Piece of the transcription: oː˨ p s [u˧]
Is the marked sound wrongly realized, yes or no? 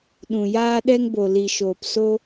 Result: yes